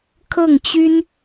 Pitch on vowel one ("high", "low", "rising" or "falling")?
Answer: falling